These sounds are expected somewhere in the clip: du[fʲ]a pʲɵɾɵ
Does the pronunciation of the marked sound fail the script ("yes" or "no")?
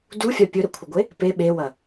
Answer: no